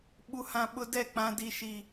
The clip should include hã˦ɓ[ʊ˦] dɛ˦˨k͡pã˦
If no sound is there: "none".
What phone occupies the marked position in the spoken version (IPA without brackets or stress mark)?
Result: ʊ˦